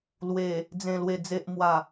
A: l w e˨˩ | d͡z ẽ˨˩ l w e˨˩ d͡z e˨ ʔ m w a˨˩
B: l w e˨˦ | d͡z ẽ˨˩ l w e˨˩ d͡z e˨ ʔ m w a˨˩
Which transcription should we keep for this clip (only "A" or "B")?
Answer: A